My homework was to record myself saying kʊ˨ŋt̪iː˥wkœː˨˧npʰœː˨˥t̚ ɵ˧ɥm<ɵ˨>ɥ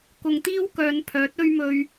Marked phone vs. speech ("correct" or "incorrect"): correct